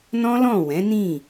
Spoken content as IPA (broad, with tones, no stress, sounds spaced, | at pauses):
n ɔ̃˦ l ɔ̃˦˨ w ɛ̃˨˦ n ĩ˦˨